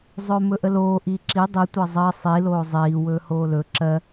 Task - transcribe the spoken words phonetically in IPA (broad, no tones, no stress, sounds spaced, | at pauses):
zˤ ɵː m ɵ ʔ ə l oː ʔ iː ǁ i dˤ i tʷ ɜ zˤ ɜ sˤ i l oː zˤ iː w ɵː h oː l ɵ ǁ ɜ